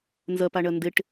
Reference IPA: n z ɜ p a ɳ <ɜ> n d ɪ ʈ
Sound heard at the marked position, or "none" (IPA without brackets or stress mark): ɜ